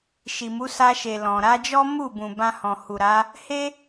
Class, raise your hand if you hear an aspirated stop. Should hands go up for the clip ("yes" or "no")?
no